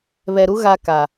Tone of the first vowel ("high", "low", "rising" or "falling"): low